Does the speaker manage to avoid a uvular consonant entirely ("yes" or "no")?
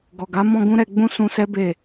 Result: yes